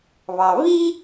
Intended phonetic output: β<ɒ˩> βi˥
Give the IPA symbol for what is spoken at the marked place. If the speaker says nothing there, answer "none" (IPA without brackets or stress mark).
ɑ˩